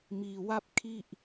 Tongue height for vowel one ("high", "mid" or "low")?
high